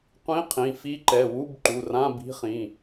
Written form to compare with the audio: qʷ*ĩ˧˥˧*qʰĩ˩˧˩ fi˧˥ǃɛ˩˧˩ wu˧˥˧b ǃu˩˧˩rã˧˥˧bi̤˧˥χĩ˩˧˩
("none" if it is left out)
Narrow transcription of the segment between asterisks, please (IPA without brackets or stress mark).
ĩ˧˥˧